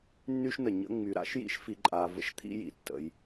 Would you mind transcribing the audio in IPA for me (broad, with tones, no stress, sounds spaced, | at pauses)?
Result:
nː y˥ ʃ n ə˩ ɲ ə̰˥ ŋ͡m y˨ ɾ a̰˥ ʃ j ḭ˦ ʃ f i˨ ǃʼ a˨ v ə̰˥ ʃ t̪ʰ ḭ˥ j ḭ˩ tː ə̰˨ j